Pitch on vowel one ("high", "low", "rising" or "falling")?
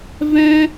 high